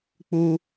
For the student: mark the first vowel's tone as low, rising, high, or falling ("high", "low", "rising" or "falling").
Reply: high